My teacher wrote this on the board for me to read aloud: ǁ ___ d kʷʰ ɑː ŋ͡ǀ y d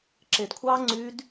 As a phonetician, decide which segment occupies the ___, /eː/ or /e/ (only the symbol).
e